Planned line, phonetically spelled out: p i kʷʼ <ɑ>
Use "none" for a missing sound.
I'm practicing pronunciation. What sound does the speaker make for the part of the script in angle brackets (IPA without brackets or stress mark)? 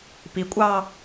ɑː